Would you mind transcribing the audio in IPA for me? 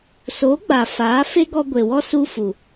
s oː˨˦ ɡ͡b aː˨ f aː˨˦ f e˦ ɡ ɔ˧ ɡʷ e˨ w ɔ˦ s u˧ f u˨

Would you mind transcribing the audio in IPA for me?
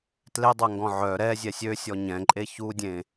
t l e dˤ œ ŋ ɡ ɔ̃ ʕ œ ɾ ɛ zʲ ɛ sʲ ø sʲ ɔ ɲ ɛ̃ ǃʼ e ç u dʲ ẽ

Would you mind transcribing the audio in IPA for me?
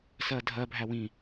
s ɜ dʱ ɜ bʱ æ w ĩ

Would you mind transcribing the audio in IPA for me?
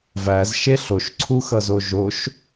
v æ z ʃ e ɬ o ʃ ǀʰ u x ʌ z o ʒ o ʃ

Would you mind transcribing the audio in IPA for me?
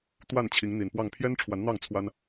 t̪ w a˥˨ n t͡ɕʰ i˨˦ ŋ n̪ i˨˩ n p w ɑ˥˨ ŋ pʰ j ɛ˦ n ʈ͡ʂʰ w a˨˦ n n̪ ɑ˥˨ ŋ t͡sʰ w a˦ n

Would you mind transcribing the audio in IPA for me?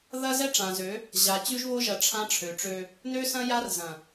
ð ɐ˦ z ɛ˦ ʈ͡ʂ ã˨ z ø˨˦ | ʑ a˨ t͡ɕ ʉ˦ ʒ β o˦ ʒ ɐ˨ ʈ͡ʂʰ ã˦ ʈ͡ʂʰ ø˨ ʈ͡ʂ ø˦ | n ø˦ s ɐ̃˦ j a˦ r z ɐ̃˨

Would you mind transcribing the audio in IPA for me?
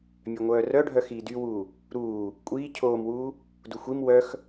mʲ œ ŋʷ œː r œ ɖʱ œ x iː d y w uː | ɾ uː | kʷʼ iː cʰ oː m w uː | d u xʷ i m w œ x

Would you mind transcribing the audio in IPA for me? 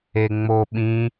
e ŋ͡m o ɓ ĩ

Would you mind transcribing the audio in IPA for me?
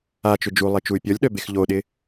a t͡ʃ ʏ d͡ʒ u lˠ e t͡ʃ u y̯ pʲ ɔ lʲ ɗ œ b e x ʎ o ɗ ɪ

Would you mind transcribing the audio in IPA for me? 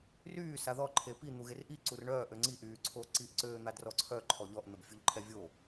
r yː s a ð ɔ ǃʰ e p i n̪ u ɣ e r ʔ i ǀ u r ɳ œː ʔ ø ŋ͡ǀ i ʔ yː ǀʰ o ǀ i ʔ ǀ øː n̪ a d r ɔ ǀʰ œ ǃʰ ɔ ʎ ɔ ʔ n̪ ə b fʲ u ʎ ǃʰ ɛ vʲ o

